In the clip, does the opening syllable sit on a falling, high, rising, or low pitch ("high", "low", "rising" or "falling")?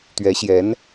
rising